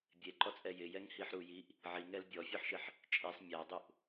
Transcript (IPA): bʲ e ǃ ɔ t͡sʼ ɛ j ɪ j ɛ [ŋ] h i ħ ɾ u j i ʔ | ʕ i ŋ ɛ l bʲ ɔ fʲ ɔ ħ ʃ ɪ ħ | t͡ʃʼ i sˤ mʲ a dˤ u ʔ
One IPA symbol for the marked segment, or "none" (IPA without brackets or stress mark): ŋ